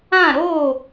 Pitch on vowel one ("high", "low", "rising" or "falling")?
falling